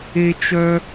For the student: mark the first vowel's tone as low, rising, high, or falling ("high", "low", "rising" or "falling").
high